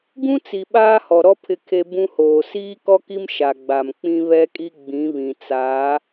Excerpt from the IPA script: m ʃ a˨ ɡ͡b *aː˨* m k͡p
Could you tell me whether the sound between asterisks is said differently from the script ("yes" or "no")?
yes